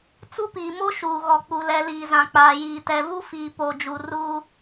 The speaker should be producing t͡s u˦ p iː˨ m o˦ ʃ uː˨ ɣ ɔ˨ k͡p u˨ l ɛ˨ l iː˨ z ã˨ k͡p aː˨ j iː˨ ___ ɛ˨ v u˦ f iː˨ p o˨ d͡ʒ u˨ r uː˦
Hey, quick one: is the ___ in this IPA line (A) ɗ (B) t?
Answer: B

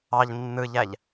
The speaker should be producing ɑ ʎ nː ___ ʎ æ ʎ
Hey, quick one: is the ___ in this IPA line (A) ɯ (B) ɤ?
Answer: A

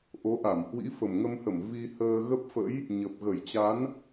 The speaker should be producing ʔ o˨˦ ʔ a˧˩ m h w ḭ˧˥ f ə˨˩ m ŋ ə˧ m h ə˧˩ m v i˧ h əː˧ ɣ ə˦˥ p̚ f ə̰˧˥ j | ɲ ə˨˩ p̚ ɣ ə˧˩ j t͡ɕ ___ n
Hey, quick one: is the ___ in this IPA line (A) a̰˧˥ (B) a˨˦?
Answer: B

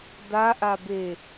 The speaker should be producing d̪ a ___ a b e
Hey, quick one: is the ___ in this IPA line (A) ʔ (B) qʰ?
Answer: A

